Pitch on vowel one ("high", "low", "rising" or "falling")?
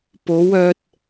rising